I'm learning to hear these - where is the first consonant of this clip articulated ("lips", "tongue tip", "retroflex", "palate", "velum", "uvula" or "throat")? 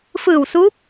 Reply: lips